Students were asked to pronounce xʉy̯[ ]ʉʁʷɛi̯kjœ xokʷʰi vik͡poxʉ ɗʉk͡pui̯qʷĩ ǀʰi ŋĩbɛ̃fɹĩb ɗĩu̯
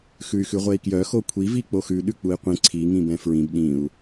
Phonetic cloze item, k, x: x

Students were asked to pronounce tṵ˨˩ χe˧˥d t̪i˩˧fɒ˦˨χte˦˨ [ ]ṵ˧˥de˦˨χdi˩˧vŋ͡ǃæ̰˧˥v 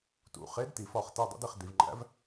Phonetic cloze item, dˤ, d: dˤ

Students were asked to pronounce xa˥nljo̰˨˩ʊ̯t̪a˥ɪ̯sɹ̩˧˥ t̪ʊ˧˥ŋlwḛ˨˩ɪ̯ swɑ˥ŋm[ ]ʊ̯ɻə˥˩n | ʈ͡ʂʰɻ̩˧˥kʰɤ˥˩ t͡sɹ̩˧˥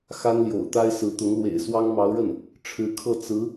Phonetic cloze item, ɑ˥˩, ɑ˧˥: ɑ˧˥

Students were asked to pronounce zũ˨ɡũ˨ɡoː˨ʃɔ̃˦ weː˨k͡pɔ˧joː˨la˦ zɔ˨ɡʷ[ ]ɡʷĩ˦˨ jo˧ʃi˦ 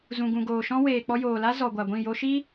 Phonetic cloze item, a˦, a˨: a˨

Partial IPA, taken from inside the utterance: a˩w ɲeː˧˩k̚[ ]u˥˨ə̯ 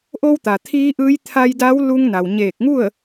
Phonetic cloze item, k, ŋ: ŋ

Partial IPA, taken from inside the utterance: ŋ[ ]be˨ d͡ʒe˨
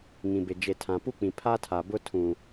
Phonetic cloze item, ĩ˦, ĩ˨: ĩ˨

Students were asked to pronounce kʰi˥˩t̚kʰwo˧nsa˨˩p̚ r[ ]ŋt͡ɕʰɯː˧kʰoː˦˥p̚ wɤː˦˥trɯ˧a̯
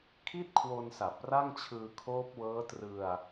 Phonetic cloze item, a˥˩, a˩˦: a˥˩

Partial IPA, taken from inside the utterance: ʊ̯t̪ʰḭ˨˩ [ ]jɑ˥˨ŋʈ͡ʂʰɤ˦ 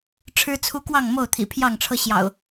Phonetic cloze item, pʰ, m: pʰ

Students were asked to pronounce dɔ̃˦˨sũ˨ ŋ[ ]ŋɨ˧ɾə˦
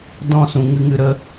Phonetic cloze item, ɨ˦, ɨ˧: ɨ˦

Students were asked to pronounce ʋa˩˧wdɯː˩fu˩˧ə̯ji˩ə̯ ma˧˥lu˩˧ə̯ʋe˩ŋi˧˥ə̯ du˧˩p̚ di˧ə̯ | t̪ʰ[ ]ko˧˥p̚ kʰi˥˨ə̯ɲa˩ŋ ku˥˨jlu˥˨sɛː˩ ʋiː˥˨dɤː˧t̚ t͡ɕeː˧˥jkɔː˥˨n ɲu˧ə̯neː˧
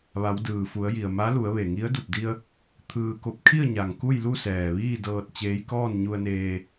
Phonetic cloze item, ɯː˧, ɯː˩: ɯː˧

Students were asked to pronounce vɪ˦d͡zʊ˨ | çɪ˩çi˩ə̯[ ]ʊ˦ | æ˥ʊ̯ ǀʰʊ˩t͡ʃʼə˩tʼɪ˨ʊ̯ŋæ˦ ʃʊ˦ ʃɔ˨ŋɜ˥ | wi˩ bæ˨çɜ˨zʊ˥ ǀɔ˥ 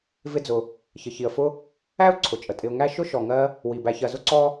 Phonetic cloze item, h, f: f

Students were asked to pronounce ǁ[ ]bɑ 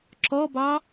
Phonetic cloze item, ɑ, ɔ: ɔ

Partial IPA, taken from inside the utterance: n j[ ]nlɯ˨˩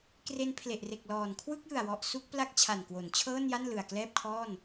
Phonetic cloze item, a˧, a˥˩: a˥˩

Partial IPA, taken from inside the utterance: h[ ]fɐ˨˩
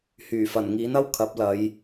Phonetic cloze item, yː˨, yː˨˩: yː˨˩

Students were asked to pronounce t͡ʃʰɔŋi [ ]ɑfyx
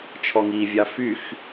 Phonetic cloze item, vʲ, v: vʲ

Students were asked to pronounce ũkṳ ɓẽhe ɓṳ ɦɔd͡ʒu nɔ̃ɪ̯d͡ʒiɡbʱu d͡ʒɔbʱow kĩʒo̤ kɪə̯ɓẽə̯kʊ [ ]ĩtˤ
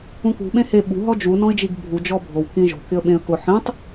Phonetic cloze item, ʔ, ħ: ħ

